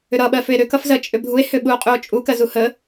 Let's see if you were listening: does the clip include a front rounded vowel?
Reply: yes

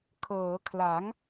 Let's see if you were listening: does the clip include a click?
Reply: no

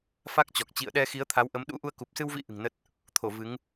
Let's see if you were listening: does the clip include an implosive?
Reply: yes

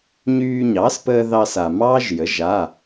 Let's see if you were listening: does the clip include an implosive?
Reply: no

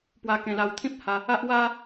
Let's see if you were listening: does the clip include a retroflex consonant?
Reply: no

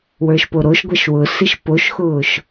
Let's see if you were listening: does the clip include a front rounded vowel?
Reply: no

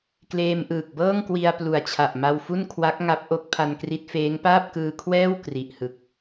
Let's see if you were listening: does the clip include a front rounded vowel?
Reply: no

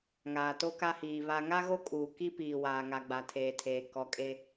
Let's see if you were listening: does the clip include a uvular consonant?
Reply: no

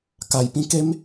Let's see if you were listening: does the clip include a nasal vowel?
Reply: yes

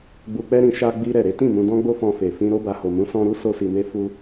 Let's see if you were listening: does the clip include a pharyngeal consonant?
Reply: no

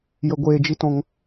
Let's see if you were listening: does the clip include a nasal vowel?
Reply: yes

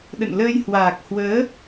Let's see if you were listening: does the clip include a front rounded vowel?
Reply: no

